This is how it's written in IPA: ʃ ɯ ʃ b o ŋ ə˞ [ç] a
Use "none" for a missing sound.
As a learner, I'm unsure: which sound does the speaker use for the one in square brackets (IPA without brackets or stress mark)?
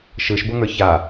ç